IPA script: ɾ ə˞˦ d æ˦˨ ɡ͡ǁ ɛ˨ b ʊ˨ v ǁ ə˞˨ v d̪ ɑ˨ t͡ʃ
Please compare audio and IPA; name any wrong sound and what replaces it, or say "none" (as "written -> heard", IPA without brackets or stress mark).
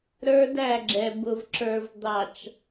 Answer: none